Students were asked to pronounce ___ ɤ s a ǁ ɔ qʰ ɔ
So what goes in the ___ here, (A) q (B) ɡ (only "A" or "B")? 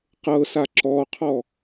A